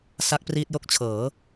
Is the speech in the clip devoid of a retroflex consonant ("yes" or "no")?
yes